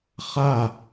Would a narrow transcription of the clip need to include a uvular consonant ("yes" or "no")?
yes